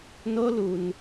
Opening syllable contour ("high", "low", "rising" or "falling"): high